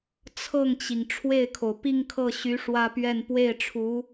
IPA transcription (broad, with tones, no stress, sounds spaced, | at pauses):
t͡sʰ ɤ˥˩ ŋ t͡ɕ i˩ ŋ ʈ͡ʂʰ w e˥˩ ɪ̯ kʰ o˩ ʊ̯ p i˥˧ ŋ kʰ ɤ˥˩ ɕ y˧˥ ʂ w ä˥ p ɥ ɛ˥˧ n p w e˥˩ ɪ̯ ʈ͡ʂʰ u˧˥